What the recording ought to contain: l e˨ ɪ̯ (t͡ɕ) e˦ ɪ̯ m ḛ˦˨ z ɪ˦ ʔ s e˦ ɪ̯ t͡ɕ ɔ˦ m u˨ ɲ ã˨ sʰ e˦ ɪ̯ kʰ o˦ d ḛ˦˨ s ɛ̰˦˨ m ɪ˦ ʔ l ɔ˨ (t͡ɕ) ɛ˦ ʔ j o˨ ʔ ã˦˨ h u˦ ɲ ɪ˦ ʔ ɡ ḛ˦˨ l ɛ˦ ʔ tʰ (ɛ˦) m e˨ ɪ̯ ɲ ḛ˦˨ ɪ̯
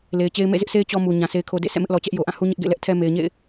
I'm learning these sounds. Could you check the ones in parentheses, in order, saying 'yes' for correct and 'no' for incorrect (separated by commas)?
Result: yes, yes, yes